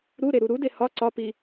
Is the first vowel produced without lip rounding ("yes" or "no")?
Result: no